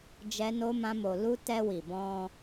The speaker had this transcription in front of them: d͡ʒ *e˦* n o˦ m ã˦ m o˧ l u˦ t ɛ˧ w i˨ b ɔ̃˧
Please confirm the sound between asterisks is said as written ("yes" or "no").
no